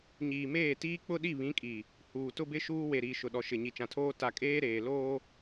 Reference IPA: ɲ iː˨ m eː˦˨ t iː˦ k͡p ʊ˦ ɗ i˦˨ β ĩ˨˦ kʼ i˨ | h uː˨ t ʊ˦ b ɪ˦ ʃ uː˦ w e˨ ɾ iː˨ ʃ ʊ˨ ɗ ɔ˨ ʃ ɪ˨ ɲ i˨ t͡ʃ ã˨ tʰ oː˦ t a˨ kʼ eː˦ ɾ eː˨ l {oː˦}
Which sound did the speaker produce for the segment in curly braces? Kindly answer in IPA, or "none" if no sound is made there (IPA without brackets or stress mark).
oː˦